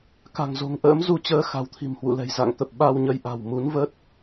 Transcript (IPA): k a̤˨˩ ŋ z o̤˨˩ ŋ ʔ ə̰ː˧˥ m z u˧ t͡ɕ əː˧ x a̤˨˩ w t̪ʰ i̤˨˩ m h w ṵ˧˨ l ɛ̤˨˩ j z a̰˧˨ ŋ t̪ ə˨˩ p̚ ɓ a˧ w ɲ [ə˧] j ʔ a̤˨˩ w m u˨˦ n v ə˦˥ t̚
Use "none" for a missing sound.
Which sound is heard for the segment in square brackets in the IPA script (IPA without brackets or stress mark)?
ə˧